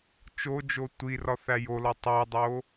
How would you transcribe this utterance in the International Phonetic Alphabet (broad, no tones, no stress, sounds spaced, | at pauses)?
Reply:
t͡ʃ o d͡ʒ o tʷ i r ɒ θ æ j o l ɒ tˤ æ dˤ o